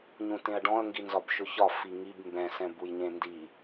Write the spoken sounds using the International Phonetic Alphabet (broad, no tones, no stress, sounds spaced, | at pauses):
ɲ ũ t ẽ ɐ̯ ɖ ɔ̃ ɐ̯ ŋ ɡ i n z ɒ b ʃ ʊ ç ɒ f i ŋ i b m b ɛ̃ s ɛ̃ b u j ɲ ẽ n d i